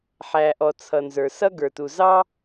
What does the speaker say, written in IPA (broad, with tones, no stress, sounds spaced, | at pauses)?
ħ æ˩ ʔ ɔ˩ t͡sʰ ʌ˩ n z ə˞˩ s ʌ˥ ɡ ə˞˩ t u˩ z ɑ˥